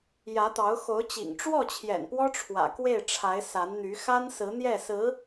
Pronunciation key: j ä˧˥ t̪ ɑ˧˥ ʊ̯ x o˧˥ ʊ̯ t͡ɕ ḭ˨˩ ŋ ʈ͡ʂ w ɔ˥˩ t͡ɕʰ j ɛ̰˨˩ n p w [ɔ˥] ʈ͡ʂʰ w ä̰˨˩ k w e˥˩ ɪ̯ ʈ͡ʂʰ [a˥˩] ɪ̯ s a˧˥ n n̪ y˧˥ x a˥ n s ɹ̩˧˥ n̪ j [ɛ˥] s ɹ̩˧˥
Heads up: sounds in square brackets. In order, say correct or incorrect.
correct, incorrect, incorrect

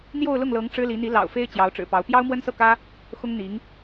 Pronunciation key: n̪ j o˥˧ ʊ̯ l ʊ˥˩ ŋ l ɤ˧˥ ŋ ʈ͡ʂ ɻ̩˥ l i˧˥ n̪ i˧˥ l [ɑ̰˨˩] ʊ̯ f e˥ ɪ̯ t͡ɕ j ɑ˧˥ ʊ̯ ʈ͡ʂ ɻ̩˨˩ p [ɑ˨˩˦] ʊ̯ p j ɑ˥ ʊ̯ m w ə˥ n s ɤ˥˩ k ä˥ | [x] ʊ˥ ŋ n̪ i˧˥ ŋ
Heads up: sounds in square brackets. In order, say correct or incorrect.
correct, incorrect, correct

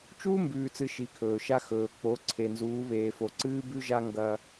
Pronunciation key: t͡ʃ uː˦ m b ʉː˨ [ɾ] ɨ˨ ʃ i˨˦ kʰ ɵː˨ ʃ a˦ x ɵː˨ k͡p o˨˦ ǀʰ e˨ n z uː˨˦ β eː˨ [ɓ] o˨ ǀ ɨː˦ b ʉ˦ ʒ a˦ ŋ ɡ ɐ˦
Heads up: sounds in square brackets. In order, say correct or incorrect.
incorrect, incorrect

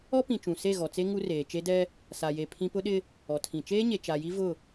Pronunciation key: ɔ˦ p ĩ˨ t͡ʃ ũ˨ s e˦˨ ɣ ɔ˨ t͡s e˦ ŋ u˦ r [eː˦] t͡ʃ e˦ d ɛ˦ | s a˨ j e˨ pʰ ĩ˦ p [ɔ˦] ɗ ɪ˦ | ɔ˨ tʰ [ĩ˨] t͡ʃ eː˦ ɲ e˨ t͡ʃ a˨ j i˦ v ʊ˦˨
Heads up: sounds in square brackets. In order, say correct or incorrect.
incorrect, incorrect, correct

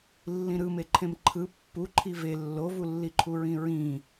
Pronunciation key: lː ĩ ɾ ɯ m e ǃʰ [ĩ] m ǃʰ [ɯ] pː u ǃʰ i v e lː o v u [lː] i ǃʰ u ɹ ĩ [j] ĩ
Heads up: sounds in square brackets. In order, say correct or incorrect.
incorrect, correct, correct, incorrect

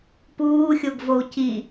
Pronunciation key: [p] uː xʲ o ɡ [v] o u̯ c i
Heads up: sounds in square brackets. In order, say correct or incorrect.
correct, correct

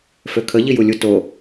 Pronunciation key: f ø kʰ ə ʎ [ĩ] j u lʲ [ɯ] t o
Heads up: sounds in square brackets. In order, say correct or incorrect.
incorrect, incorrect

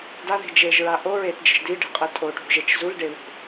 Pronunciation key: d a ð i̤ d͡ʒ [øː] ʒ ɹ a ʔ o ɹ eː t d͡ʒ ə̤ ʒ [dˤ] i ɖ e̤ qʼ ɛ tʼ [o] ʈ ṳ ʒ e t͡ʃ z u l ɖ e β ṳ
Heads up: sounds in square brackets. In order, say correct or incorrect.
incorrect, incorrect, correct

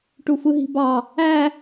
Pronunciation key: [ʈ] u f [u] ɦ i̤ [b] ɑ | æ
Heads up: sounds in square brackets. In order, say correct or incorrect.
correct, incorrect, correct

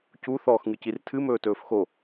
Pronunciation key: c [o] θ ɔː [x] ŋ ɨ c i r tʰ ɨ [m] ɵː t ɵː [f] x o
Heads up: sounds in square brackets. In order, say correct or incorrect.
incorrect, correct, correct, correct

